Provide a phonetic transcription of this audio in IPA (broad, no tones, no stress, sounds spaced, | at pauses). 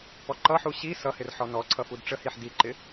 p ɔ ǃ ʌ ħ u ɕ i s ʌ h ɪ r ħ ɔ n ɔ ǀʰ ʌ f u d ʈ͡ʂ ə h i ħ d i ǃ ɪ